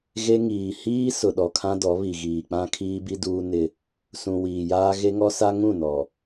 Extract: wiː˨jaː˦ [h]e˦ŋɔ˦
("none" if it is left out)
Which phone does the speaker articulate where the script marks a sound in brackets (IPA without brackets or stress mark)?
ɣ